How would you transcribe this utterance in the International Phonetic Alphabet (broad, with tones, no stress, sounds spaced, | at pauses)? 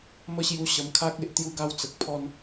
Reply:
m ə˧ ɕ j u˧ ɕ ə˧ m kʰ a˦ k̚ e˦ ʔ t̪ j u˧ ɡ a˧ w t͡s ə˨ k̚ pʰ ɔ˦ n